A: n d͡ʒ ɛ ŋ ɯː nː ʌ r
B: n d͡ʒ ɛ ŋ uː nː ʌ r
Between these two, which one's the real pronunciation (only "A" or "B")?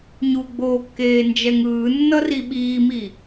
A